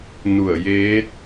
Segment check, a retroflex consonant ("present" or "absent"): absent